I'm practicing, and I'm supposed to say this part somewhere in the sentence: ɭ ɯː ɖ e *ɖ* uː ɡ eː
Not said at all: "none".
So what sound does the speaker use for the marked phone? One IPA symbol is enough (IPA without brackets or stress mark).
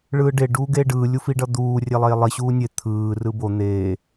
ɖ